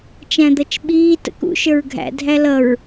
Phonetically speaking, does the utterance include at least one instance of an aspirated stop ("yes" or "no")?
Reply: no